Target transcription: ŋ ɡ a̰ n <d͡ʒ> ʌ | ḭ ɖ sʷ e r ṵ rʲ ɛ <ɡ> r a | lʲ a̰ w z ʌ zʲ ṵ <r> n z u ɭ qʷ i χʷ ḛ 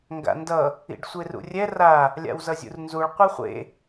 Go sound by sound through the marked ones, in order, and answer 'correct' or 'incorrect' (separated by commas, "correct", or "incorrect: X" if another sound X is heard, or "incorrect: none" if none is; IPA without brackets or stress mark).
incorrect: d, incorrect: none, correct